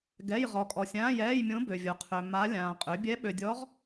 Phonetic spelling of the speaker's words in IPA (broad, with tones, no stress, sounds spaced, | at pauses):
ɡ ɛ˧˥˧ j ʁ ɔ˨ kʼ ɔ˨ sʲ ãː˧˥˧ j ɛː˧˥˧ j mʲ õ˧˥ b ø˨ vʲ o˩˥ qʰ ø˨ m a˧˥ lʲ ãː˨ qʼ ø˩˥ bʲ ɛ˧˥ ɓ ø˨ dʲ ɔ˧˥ ʁ